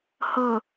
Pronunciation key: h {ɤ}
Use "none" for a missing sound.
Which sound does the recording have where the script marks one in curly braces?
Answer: ɤ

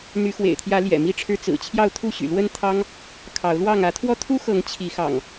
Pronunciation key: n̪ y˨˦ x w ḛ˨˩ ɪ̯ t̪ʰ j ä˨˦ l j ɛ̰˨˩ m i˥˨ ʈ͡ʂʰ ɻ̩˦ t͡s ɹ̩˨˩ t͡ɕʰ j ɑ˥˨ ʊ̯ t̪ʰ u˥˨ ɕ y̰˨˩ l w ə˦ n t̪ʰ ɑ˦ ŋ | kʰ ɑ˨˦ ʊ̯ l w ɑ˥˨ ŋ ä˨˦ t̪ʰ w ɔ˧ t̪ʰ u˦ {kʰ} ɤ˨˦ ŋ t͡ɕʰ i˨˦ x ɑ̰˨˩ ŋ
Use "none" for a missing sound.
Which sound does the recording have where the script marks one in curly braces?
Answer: x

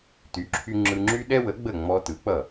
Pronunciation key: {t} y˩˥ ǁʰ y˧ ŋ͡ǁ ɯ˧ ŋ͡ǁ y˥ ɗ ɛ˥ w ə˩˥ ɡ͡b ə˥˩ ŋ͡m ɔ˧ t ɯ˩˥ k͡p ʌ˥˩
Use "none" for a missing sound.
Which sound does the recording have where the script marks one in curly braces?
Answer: t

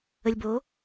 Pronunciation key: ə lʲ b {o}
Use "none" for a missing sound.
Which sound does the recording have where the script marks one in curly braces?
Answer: o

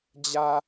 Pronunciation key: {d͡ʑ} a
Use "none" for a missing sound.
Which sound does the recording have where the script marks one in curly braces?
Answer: d͡ʑ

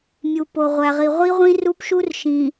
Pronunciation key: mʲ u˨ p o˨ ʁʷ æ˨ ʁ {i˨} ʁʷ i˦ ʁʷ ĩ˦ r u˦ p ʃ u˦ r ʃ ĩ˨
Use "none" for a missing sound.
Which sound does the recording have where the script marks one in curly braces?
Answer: i˨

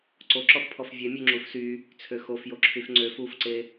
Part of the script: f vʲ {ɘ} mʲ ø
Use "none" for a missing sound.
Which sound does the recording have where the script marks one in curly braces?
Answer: ɛ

